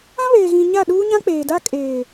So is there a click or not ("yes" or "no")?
no